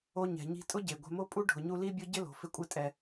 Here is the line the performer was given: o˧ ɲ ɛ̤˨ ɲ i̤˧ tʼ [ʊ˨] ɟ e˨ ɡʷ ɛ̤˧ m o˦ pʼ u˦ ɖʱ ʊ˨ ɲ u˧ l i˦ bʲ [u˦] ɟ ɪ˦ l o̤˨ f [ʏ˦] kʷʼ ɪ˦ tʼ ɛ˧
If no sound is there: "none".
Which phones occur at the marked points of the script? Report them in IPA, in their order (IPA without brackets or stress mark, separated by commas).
ʊ˦, ʊ˦, ɪ˦